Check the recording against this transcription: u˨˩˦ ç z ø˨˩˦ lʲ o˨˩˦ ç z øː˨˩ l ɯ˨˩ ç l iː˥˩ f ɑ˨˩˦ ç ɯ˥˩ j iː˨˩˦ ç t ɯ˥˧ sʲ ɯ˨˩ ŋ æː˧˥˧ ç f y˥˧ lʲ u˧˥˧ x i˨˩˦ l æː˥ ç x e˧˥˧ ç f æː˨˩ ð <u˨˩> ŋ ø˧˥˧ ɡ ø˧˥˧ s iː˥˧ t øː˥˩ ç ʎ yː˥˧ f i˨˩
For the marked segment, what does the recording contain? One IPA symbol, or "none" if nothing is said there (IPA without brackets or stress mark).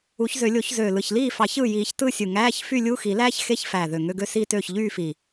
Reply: ø˨˩